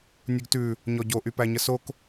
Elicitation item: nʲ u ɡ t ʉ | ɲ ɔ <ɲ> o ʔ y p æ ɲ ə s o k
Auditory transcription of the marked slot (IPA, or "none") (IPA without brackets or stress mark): ɟ